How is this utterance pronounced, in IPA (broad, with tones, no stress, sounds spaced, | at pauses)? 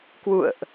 k w ṵ˧˨ ə̯ ʔ